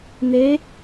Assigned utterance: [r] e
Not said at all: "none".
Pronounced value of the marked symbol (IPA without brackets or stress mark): n